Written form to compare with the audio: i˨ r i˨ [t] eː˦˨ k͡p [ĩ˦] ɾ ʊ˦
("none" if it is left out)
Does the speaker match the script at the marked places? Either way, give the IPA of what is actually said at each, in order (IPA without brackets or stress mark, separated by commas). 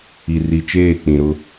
t͡ʃ, ĩ˨